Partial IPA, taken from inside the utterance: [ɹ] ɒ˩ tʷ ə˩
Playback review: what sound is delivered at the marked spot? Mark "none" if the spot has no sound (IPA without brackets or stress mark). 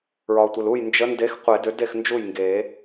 ɹ